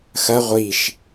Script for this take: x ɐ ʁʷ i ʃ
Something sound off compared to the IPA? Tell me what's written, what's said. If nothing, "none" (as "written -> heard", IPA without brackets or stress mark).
none